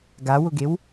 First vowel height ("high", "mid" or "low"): low